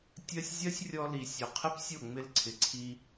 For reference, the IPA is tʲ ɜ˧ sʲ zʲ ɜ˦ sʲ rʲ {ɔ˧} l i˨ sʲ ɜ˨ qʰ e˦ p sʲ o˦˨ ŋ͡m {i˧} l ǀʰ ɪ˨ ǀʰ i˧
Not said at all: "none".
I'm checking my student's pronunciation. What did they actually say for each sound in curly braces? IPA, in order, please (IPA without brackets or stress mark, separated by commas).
ɔ˧, ɪ˧